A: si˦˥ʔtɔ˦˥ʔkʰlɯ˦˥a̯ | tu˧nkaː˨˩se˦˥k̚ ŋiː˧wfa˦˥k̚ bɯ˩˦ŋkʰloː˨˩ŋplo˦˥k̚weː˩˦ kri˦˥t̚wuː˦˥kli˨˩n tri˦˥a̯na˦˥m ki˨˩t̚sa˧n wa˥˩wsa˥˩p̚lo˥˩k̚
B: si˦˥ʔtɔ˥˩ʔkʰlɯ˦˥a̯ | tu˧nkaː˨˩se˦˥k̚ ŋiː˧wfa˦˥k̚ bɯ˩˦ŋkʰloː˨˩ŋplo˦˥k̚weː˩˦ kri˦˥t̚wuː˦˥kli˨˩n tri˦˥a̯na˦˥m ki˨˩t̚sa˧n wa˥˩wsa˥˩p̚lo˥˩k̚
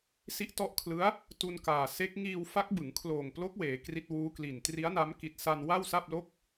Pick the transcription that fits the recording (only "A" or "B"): A